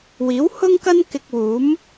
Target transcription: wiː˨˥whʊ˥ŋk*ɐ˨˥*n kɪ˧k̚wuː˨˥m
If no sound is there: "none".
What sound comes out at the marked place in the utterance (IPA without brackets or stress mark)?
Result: ɐ˥